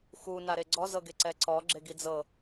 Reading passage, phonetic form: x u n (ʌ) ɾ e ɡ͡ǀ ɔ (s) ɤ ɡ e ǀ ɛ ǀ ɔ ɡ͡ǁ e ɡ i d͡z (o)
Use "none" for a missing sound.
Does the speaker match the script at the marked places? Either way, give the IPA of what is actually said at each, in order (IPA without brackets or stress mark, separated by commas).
a, z, ɤ